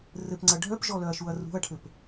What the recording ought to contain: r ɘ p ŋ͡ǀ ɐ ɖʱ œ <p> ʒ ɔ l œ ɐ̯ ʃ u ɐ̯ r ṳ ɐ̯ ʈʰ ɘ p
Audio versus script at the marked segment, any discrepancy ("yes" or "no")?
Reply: no